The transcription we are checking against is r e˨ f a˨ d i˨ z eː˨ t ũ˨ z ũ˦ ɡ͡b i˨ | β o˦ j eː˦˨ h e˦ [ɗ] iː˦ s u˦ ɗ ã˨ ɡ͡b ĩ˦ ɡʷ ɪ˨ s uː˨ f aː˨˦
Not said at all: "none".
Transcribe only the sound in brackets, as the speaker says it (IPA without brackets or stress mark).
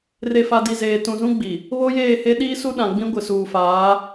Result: ɗ